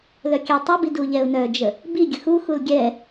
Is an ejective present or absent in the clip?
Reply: absent